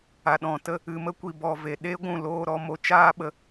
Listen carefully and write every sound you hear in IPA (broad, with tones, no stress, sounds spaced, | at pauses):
a˨ ɗ ɔ̃˨ t ə˧ | ɨ˨ m ə˧ kʷ i˨ b ɔ˨ v e˨ ɗ e˦ ɡʷ ũ˦˨ l oː˧ ɾ ɔ˧ m o˧ t͡ʃ aː˦ ɓ ə˧